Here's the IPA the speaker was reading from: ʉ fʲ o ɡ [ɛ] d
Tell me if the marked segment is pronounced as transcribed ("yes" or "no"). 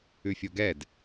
yes